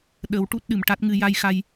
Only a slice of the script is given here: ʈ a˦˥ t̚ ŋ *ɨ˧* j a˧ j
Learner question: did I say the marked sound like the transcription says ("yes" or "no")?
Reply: yes